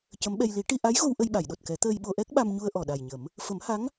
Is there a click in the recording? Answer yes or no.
no